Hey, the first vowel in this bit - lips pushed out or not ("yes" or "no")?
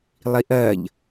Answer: no